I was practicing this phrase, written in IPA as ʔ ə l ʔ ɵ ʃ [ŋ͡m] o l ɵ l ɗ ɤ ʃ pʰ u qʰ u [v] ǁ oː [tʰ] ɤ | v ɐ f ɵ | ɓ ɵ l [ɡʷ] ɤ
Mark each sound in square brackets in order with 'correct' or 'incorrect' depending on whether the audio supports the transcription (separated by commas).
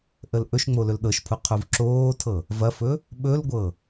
correct, correct, correct, correct